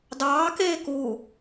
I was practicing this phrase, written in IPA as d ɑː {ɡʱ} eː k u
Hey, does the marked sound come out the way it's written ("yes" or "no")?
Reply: no